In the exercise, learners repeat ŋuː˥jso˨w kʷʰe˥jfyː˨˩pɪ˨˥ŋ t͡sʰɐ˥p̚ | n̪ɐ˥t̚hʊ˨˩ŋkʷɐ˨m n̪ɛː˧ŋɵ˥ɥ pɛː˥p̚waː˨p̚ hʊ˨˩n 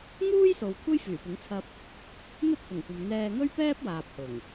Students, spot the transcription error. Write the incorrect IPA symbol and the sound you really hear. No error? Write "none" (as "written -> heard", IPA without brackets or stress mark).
n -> ŋ